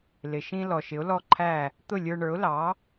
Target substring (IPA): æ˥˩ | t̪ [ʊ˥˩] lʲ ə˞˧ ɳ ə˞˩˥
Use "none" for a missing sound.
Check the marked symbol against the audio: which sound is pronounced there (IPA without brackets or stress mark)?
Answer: ʊ˥˩